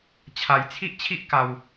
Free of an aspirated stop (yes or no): no